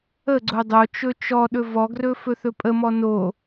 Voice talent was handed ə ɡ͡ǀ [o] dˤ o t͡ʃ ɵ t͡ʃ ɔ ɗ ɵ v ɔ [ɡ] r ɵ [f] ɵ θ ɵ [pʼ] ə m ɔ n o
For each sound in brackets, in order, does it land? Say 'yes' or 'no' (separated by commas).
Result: yes, yes, yes, yes